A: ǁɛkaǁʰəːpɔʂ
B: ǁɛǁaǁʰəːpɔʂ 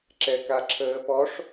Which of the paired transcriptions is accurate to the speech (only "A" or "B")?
A